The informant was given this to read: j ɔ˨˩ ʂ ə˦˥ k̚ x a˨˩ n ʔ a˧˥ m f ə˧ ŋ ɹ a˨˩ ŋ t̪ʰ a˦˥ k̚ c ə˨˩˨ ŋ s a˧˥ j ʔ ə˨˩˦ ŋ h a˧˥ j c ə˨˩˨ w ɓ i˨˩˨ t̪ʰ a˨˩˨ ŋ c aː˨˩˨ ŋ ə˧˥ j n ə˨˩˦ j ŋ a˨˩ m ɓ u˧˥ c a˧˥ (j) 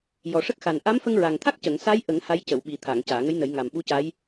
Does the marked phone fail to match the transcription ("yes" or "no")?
no